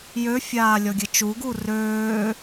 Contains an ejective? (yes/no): no